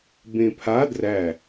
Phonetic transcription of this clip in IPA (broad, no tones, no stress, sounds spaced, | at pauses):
b ẽ pʰ a d r æ